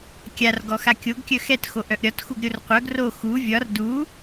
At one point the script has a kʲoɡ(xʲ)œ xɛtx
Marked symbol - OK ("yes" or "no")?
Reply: no